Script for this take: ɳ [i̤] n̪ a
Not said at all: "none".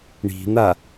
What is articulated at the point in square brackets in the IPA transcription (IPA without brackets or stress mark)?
i̤